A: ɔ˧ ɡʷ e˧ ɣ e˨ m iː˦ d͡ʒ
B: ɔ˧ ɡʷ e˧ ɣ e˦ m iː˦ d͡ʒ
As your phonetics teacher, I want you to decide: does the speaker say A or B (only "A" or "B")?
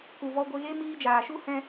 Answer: B